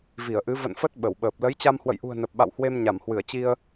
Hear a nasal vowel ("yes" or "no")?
no